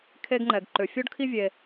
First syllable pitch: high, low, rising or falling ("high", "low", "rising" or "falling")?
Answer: high